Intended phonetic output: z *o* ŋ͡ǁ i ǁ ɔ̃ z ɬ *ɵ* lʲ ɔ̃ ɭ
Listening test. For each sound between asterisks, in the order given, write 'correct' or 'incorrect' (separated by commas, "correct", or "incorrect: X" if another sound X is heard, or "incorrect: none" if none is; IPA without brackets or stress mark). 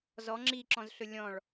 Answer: incorrect: ɔ, correct